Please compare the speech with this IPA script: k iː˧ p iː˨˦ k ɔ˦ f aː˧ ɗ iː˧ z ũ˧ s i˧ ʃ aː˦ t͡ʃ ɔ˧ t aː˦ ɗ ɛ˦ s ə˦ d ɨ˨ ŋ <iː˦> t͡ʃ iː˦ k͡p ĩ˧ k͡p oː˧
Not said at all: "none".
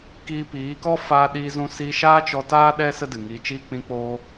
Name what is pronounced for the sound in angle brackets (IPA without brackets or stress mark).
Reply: iː˧